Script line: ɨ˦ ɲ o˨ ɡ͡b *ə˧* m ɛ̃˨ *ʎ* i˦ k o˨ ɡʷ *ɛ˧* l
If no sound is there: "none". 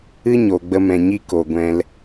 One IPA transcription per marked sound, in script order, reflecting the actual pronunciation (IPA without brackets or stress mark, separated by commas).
ə˧, ɲ, ɛ̃˧